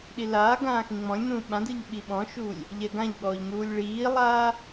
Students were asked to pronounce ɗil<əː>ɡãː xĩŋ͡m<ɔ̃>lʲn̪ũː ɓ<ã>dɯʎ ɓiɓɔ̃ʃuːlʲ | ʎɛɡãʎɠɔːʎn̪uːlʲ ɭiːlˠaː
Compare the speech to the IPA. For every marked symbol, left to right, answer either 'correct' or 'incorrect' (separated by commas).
incorrect, correct, correct